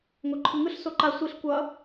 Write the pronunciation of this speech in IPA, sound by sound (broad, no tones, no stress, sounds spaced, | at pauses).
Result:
ŋ o ǃʰ ɯ ŋ ɯ ɬ s o ǃ a sʷ i ɬ kʷ ʌ